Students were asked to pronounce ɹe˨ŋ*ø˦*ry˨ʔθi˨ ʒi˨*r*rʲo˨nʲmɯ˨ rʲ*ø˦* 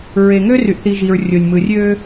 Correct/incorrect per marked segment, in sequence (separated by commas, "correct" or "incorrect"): correct, incorrect, correct